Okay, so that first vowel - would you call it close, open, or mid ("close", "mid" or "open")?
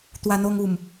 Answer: open